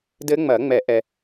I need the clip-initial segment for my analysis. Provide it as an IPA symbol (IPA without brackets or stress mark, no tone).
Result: d